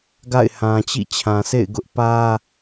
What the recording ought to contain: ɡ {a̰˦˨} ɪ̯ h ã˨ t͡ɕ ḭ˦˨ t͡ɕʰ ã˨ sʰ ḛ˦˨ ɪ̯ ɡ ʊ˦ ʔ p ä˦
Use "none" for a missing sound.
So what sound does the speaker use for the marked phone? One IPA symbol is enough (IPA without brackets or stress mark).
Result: a̰˦˨